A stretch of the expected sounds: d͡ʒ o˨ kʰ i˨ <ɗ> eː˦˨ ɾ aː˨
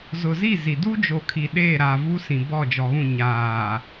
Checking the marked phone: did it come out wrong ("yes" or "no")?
no